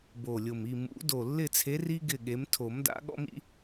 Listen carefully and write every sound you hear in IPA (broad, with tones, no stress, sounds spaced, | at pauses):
b o˨˩ lʲ ʊ˨˩ m i˦˨ m ṵ˨˩˦ d o˨˩ lː ɪ˦˨ t͡sʰ e˨˦ r i˦ ɡ ɪ˦˨ ɠ e˨˦ m tʰ o˨˩˦ m d a̰˨˦ ɠ ɔ̰˦ m ḭ˦